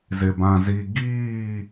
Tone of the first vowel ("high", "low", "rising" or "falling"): low